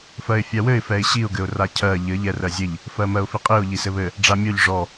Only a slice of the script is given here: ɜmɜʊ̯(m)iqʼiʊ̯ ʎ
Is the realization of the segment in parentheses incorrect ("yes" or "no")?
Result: yes